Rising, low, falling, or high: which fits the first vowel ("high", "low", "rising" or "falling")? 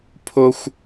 high